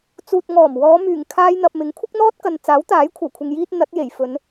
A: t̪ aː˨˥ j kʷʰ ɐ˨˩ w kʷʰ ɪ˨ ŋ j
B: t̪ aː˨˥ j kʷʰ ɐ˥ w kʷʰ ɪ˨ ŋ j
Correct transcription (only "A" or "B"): A